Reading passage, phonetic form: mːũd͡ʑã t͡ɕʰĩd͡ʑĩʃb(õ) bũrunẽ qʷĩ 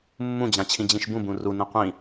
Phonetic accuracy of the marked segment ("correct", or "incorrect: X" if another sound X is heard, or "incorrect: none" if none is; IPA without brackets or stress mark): incorrect: ũ